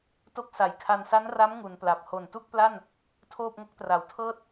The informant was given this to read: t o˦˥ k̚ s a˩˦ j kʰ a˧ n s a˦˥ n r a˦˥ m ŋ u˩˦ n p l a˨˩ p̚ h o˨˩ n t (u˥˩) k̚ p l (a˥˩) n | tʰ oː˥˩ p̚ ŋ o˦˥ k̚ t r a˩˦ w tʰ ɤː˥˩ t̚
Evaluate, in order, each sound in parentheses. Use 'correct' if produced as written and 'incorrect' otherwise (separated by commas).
correct, correct